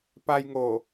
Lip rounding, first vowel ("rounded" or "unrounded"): unrounded